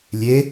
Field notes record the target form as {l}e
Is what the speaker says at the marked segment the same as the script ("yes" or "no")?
no